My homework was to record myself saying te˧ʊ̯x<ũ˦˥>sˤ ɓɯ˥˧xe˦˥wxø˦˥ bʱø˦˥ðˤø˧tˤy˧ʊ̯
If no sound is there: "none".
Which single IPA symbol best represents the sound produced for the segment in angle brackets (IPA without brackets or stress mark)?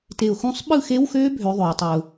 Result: ũ˦˥